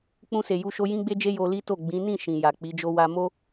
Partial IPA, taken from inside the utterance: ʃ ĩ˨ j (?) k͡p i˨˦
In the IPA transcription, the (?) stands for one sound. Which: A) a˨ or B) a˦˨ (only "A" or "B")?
A